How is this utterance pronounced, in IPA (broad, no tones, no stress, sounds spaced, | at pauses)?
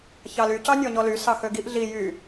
ç ɑ l y c ɑ nʲ ɔ ɲ ɔ l y s ɑ x ø ɡ i ʔ ɮ i j y